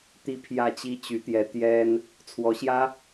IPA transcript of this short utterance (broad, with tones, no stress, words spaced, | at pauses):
t̪i˥˧ pʰjä˥˩t͡ɕi˥t͡ɕy˧˥t̪jɛ˧˥ t̪jɛ˥n | t͡sʰwɔ˧˥ɕjä˥